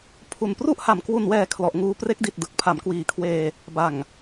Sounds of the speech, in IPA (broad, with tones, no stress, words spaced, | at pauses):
pʰu˨˩npru˥˩ʔha˨˩m kwu˨˩nwɛː˨˩ kʰlɔ˨˩ʔŋuː˧ pre˦˥k̚di˨˩t̚ dɯ˨˩k̚pʰa˩˦mkwiː˨˩kʰweː˧ | ba˨˩ŋ